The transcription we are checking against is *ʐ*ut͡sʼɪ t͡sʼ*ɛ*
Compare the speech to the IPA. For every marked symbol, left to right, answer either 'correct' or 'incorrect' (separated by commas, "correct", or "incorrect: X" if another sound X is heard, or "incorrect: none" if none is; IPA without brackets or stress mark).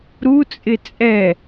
incorrect: ɾ, correct